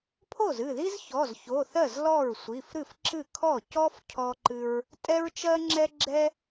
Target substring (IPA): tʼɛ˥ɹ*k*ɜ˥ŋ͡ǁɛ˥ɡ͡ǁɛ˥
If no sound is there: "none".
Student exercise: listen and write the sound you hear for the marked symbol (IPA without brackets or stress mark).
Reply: t͡ʃ